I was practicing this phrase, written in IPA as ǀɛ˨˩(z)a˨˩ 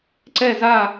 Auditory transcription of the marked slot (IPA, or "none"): z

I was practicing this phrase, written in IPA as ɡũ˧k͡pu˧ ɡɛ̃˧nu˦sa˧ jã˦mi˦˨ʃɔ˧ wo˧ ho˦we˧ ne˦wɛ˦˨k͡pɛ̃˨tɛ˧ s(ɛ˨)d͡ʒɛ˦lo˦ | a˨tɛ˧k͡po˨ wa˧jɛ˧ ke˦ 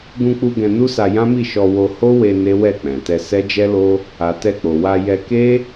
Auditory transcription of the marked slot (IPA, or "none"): ɛ˦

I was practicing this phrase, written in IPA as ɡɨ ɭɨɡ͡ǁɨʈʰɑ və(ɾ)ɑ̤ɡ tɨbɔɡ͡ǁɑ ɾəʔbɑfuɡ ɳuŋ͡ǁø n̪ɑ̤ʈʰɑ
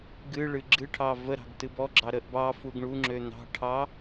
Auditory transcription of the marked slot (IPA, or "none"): ɾ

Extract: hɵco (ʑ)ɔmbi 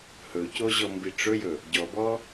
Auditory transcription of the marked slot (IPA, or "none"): ʑ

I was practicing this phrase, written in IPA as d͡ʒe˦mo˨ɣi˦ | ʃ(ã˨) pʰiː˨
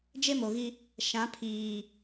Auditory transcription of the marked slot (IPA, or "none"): ã˨˦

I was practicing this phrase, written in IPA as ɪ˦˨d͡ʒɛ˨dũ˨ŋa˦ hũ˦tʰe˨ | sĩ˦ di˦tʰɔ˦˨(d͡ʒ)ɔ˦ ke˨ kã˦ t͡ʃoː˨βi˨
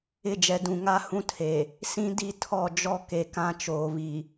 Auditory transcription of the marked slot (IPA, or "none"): d͡ʒ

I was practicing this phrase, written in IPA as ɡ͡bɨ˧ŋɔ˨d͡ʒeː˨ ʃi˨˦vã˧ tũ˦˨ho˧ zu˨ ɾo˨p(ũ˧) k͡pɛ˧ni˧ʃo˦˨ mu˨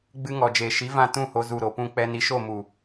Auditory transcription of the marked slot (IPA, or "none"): ũ˧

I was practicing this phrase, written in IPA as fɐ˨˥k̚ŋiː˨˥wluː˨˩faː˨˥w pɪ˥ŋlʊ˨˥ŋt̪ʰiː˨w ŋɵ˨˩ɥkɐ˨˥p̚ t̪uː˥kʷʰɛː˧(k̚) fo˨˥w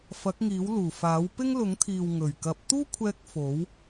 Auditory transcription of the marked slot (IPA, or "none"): k̚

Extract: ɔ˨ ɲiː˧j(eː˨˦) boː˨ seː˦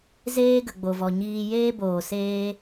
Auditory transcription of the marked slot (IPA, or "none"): eː˦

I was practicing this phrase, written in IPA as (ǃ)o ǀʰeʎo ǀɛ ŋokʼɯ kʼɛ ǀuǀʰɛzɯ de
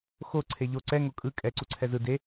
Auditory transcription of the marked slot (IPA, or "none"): x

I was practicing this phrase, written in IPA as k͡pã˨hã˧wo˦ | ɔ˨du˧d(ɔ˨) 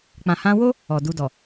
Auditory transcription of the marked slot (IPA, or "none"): ɔ˨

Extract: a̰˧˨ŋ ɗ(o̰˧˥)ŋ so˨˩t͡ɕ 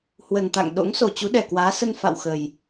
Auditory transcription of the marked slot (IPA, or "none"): o̰˧˥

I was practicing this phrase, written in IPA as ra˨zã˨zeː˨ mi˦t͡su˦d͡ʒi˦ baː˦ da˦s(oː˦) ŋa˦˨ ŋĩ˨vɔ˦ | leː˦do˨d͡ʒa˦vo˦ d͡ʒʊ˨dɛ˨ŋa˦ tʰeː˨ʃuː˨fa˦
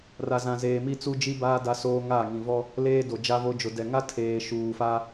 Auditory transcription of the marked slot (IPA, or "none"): oː˦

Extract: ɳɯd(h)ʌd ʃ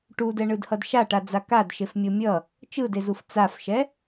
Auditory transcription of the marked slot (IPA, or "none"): h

